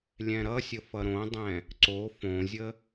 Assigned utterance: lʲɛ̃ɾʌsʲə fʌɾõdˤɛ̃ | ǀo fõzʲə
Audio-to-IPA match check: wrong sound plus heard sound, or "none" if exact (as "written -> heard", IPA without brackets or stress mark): none